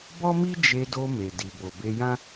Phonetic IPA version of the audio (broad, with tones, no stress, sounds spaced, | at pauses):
b ɔ˦ m i˦ d͡ʒ e˧ d o˧ m e˨ d i˨ b o˨ b e˧ j ã˦